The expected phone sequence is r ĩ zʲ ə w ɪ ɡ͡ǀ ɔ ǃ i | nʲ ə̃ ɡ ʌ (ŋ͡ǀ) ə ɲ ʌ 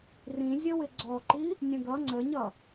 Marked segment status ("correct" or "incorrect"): correct